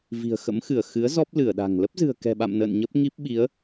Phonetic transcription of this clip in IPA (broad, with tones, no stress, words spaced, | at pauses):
vi̤˨˩ə̯xə̰˧˥mxɨ˧˩ə̯ xɨ˨˦ə̯ zɔ˦˥p̚ lɨ˧˩ə̯ɗa̤˨˩ŋ lə˦˥p̚zɨ̤˨˩ə̯kɛ̤˨˩ɓa̰˧˨m nə̰ː˧˨nɲə˦˥p̚ŋi˦˥p̚ɓi˨˦ə̯